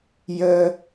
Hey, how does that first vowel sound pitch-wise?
high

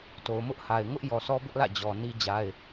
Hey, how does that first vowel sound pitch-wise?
low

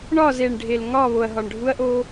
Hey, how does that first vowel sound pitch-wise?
falling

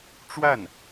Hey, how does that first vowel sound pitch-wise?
falling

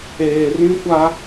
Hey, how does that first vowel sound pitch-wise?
low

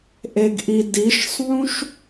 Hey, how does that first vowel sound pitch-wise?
low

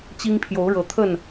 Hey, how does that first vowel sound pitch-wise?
high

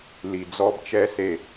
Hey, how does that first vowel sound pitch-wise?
low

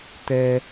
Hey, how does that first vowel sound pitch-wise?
low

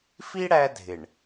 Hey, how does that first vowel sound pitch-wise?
high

